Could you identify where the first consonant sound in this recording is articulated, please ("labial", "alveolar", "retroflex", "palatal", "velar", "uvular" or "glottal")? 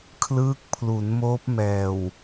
velar